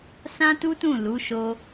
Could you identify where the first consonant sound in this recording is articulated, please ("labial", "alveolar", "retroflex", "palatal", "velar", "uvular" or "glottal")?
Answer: alveolar